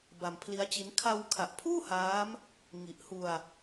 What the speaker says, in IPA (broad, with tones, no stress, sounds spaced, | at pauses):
b a˧ m pʰ l i˦˥ a̯ t͡ɕ i˦˥ n kʰ a˧ w kʰ a˨˩ ʔ pʰ uː˥˩ h aː˦˥ m | ŋ i˨˩ ʔ h u˧ a̯